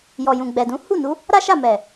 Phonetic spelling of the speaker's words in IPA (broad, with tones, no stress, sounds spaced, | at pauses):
j ɔ˨ j ũ˨ ɡ͡b ɛ˨ d ũ˨˦ h u˦˨ n u˨˦ | ɾ a˦ ʃ a˦˨ m ɛ˨